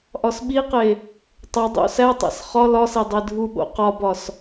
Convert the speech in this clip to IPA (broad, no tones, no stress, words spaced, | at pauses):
ʔɒsɓiqe | tˤo dˤo̰sætˤæ̰s χɒ lɒse dˤedʱuɓo̰ qɒbɒs